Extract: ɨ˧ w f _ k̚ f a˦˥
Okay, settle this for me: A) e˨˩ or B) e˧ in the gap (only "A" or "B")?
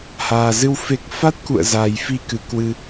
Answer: A